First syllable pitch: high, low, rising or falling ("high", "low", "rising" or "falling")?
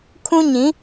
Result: high